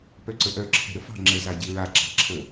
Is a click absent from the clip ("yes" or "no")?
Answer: no